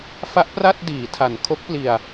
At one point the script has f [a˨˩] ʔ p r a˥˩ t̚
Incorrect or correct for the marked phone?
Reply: incorrect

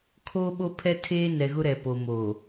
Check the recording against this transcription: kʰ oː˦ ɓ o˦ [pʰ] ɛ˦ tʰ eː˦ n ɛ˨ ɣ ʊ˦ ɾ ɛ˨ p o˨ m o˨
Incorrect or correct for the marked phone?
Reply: correct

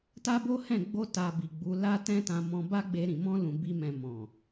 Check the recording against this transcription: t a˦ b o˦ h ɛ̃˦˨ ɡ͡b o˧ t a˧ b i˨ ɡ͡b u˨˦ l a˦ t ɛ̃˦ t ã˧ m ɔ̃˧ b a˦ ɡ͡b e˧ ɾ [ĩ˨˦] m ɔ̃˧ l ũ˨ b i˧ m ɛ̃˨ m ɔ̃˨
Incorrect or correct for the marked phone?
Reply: incorrect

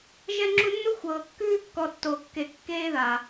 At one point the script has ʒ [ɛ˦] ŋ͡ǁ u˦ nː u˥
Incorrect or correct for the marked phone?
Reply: correct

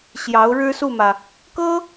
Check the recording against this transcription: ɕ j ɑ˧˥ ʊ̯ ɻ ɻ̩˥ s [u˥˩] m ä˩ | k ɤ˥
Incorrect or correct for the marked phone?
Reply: correct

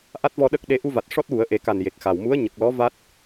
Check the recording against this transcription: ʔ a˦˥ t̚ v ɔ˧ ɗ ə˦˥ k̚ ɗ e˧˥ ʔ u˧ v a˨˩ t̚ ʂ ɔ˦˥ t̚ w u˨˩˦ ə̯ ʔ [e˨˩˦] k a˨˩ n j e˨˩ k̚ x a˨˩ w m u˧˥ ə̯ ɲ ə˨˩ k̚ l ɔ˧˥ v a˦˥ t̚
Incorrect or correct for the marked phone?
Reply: correct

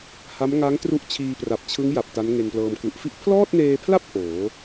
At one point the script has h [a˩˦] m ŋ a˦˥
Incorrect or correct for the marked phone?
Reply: incorrect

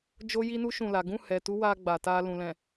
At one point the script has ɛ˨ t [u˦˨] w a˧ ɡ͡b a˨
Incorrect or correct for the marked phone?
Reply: incorrect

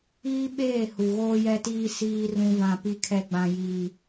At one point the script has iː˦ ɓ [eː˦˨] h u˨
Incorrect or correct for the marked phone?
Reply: correct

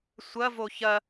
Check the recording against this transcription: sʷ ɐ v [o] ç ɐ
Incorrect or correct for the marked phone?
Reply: correct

